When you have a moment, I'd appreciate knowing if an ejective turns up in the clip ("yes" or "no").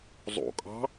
yes